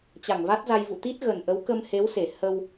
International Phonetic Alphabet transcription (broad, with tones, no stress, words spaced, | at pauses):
t͡ɕa˧˩ŋva˦˥t̚za˧j vṵ˧˨t̪i˦˥t̚ɣə˨˩nʔə˨˦w kə˧mhe˨˦w se˧˩ hə˧w